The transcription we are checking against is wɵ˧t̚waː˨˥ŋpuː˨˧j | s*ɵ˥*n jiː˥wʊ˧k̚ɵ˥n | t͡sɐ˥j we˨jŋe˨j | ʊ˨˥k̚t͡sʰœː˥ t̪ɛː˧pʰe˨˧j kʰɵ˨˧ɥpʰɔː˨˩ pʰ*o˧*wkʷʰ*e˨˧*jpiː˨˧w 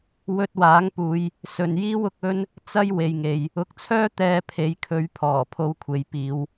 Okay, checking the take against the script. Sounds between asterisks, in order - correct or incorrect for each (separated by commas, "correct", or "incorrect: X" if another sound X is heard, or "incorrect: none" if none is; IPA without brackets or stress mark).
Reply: incorrect: ɵ˨, correct, correct